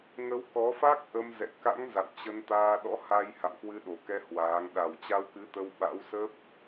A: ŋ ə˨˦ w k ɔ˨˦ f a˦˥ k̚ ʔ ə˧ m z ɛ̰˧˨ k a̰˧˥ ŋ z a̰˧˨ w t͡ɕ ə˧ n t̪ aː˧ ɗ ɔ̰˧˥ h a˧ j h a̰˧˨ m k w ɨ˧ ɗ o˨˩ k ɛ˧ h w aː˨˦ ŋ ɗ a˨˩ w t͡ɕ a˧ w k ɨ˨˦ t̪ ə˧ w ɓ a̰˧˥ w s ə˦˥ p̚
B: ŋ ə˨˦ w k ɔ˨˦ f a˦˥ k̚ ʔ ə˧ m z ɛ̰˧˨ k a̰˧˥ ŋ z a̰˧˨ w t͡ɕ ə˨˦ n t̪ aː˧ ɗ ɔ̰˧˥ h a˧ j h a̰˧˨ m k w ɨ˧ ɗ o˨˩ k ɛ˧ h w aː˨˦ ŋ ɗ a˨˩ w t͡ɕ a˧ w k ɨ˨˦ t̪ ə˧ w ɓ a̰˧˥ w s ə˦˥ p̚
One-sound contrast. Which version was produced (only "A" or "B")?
A